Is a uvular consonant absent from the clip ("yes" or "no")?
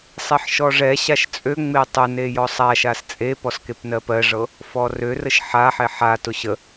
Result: yes